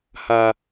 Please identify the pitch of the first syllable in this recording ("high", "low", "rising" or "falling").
low